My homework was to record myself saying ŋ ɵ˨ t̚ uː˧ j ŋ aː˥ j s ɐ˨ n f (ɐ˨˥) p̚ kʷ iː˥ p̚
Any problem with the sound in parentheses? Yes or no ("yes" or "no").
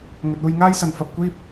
yes